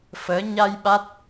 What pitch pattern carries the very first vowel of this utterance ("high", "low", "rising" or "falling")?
rising